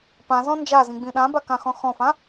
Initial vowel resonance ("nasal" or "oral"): nasal